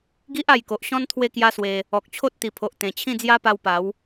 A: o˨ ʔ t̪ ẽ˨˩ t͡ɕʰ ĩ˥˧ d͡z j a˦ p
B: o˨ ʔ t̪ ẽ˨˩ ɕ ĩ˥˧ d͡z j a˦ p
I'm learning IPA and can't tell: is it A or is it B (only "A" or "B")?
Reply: A